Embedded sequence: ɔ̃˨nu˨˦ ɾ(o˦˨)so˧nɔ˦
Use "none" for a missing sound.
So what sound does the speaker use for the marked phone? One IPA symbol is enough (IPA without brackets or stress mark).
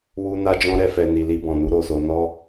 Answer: o˧